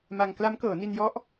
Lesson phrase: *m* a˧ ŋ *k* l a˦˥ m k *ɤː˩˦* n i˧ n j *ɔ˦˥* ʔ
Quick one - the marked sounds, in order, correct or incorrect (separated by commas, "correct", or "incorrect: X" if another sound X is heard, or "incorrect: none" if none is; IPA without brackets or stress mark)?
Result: correct, correct, correct, correct